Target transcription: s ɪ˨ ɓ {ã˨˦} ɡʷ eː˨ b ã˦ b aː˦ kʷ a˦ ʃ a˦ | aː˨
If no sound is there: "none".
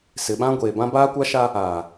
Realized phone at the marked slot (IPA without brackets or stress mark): ã˦